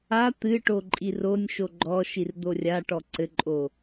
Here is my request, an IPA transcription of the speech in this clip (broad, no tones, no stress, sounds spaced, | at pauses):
a t̪ ɨ ʈ o ǃʼ i r o nʲ ʃ o ɡ͡ǃ ɔ ʃ i r d̪ o rʲ a ʈ ɔ ǀ ɘ ǃʼ o